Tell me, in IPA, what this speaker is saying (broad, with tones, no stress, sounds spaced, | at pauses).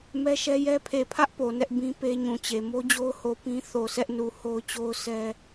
m ɛ˦ ʃ ɛ˦ j ɛ˦ pʰ e˨ pʰ ä˦ ʔ p o˨ n ɛ˦ ʔ b ĩ˦ p e˦ ɲ ũ˨ t͡ɕ e˨ m o˦ d͡ʑ o˦ ʊ̯ h o˨ p ĩ˦ θ o˨ s ɛ˦ ʔ n u˨ h o˦ ʊ̯ t͡ɕ o˦ ʊ̯ s ɛ˦